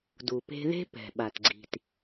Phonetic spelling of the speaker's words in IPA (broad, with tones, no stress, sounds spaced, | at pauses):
d u˩ p e̤˧ ð e̤˧ p ɛ̤˩ ɓ a˩ t ɡ͡ǀ i̤˩ t